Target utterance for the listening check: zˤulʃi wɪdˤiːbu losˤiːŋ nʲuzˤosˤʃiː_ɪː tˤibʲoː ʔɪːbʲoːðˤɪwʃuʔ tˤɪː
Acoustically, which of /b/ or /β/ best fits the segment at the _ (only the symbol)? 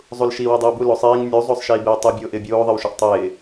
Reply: b